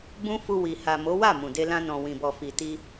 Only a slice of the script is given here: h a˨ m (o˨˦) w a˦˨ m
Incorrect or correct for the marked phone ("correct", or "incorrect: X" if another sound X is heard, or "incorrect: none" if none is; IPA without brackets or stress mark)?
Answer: correct